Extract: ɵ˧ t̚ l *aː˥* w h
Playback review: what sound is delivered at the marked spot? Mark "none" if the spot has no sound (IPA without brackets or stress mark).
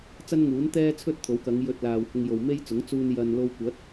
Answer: aː˨